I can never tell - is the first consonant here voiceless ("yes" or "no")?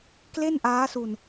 yes